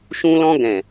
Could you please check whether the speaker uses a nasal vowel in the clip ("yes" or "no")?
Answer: yes